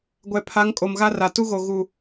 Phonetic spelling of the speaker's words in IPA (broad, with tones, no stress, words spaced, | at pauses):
ɡʷɛ˨pʰa˨˦ŋ kʼo˨mɣa˦ra˨ tu˦ɣo˨ ɣu˦˨